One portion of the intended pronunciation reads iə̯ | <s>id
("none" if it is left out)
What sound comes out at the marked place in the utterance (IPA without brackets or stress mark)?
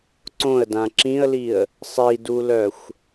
sˤ